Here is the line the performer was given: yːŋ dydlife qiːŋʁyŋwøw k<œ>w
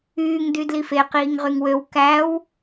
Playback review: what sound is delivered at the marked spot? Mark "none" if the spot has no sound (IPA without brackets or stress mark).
æ